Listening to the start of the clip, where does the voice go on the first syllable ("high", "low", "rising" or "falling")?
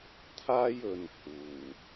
high